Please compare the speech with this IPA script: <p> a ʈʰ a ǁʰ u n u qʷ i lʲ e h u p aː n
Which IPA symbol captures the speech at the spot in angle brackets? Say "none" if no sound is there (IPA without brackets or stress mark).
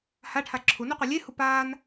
h